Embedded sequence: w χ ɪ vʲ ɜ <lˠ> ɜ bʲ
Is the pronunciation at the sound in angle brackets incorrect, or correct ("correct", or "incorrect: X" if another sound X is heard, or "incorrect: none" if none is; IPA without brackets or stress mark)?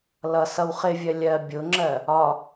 incorrect: lʲ